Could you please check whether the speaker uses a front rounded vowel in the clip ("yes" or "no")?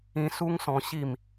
no